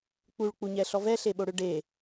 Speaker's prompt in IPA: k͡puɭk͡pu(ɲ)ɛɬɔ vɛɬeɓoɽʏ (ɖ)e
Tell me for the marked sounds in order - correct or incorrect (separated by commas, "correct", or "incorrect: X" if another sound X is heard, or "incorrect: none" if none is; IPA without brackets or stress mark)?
correct, correct